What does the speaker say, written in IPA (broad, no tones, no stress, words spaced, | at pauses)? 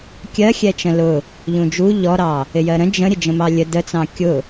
kʲɜxʲɛt͡ʃə̃ lʊ | ʎũd͡ʒu ʎɔɾɑ | ɪjɜɾə̃ d͡ʒə̃ ɾʲəd͡ʒə̃mɑlʲə dət͡sɑ̃ kʲʊ